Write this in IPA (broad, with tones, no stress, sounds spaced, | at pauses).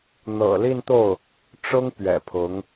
n̪ ɤ̰˨˩ l i˥˧ n t̪ o˥˩ ʊ̯ | ʈ͡ʂ ʊ˥ ŋ p ɥ ɛ̰˨˩ pʰ ʊ˧˥ ŋ